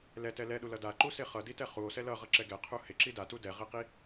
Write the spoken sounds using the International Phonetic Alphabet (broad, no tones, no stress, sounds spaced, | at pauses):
l ɛ t ɛ l ɛ ɗ u l ʌ d a ǃ u s e χ ʌ d i t ɛ χ u o̯ s ɛ l ʌ ʁ ʌ ǁ ɛ ɡ ɛ qʰ u h e ǁ i d a t u d ɛ ʁ e q i